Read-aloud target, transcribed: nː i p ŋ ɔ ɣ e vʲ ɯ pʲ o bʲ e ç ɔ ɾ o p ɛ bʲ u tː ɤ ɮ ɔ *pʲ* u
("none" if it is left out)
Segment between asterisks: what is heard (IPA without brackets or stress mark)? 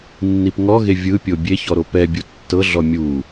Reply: mʲ